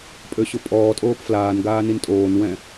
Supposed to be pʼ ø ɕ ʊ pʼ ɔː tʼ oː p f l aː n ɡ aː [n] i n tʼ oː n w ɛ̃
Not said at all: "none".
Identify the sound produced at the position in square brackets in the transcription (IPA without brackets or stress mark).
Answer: n